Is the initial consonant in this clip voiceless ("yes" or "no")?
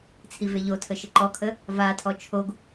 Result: yes